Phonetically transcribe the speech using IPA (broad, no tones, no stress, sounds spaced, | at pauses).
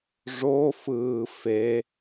ʐ o f ɯː f e